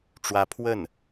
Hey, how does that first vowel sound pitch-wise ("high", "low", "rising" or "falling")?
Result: rising